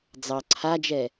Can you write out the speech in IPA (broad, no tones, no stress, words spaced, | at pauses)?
d͡zɑ ǀʰad͡ʒɛ